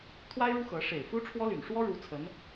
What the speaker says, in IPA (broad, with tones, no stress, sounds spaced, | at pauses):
t̪ʰ w a˥ ɪ̯ ɻ u˥ x ɤ˧˥ ʂ e˨˩ ɪ̯ f u˥ ʈ͡ʂʰ w ɔ˥ l y˨˩ n ʂ w ɔ˥ ɻ u˧˥ t͡sʰ ə˧˥ n